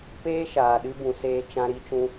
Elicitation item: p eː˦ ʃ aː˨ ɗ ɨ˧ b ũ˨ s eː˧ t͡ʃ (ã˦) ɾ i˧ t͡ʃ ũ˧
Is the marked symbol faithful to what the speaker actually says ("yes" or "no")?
no